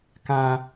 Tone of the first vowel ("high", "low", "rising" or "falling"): high